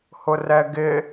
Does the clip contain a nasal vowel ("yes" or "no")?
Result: no